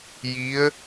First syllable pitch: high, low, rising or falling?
rising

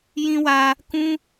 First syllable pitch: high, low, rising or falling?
high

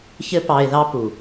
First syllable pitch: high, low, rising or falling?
high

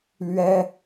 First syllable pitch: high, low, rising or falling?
high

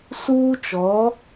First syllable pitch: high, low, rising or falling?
high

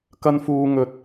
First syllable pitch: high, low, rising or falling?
high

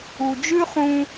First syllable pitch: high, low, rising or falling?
low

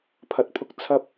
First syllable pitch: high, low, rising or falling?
rising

